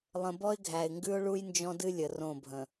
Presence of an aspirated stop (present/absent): absent